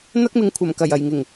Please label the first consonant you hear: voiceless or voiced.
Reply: voiced